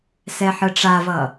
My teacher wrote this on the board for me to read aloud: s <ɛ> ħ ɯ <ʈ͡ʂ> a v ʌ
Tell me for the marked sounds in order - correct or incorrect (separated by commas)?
correct, correct